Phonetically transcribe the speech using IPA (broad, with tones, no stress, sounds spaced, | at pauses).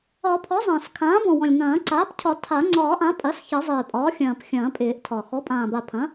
ɒ˨˩˦ pʰ ɔ˩˥ zˤ ɐ̃ː˨˩ s kʰ ãː˩˥ b ɔ̃˨˩ w ɔ̃˨˩ lʲ ŋ ɐ̃ː˨˩˦ ǀ aː˩˥ p cʰ ɒ˨˩˦ tʰ a˨˩˦ ŋ͡ǀ ɒː˨˩˦ ʔ ã˩˥ pʼ ɐ˩˥ s ç ɐ˨˩˦ zˤ ɪː˨˩ pʼ ɒː˩˥ xʲ ɐ̃ː˨˩ p xʲ ɐ̃ː˨˩˦ pʼ ɪː˨˩˦ ʔ tʰ ɒ˨˩ x ɔ˩˥ pʼ ãː˨˩ b a˨˩ pʰ ɐ̃˩˥